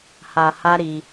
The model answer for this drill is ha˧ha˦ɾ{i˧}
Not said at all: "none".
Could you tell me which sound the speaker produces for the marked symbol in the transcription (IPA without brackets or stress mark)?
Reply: i˧